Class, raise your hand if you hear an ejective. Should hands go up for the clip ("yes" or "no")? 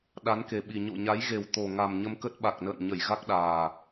no